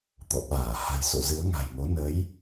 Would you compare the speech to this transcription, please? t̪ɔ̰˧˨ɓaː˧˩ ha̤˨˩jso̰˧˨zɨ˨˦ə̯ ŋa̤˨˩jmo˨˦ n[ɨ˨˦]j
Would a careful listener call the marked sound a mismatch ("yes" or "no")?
yes